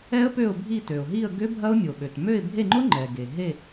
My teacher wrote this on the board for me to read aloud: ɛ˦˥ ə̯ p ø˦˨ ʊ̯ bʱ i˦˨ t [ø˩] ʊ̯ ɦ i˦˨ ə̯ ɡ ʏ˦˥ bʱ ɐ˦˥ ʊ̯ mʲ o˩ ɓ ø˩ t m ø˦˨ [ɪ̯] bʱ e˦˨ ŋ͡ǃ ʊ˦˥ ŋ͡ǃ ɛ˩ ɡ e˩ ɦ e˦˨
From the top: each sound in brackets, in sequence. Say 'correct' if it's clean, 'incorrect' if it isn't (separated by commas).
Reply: correct, correct